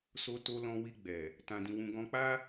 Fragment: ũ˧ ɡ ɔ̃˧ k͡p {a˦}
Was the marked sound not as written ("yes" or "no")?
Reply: no